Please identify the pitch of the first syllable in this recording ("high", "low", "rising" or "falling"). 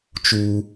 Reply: high